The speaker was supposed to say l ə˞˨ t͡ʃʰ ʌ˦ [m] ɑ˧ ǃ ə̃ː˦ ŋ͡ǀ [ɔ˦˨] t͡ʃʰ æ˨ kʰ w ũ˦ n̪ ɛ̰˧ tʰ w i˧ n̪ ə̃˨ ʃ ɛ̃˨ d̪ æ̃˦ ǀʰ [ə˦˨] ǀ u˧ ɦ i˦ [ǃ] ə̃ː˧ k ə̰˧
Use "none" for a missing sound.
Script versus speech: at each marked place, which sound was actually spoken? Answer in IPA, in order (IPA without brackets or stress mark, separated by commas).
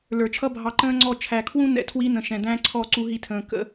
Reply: bʱ, ɔ˦˨, ɔ˦˨, tʰ